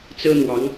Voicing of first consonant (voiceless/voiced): voiceless